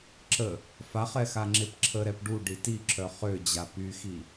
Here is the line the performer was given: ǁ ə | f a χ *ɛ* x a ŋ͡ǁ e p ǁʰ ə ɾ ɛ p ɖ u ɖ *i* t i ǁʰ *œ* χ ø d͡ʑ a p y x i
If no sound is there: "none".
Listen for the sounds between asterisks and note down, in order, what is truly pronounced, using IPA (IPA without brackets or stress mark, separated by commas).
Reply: ɛ, i, œ